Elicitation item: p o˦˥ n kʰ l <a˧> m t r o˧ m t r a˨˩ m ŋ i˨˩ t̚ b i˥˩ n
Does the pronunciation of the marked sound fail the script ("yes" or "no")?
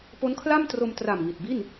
yes